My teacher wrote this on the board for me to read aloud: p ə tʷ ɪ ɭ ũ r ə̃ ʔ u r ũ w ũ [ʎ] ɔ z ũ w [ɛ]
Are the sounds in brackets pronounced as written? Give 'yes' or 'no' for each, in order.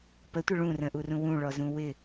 no, no

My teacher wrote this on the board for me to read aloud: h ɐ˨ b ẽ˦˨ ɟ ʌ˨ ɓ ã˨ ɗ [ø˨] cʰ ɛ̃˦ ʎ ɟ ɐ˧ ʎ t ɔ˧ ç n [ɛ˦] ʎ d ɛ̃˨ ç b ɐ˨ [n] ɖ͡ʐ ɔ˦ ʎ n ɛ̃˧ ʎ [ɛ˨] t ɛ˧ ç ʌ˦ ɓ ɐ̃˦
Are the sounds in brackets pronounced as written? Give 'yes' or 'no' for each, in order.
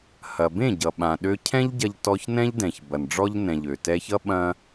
no, no, yes, no

